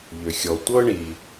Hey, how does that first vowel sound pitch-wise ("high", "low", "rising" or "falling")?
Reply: low